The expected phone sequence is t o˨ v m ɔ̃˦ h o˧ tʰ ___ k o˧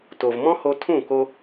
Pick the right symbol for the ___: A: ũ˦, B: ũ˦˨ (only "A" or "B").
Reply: B